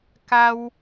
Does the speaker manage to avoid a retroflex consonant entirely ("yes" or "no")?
yes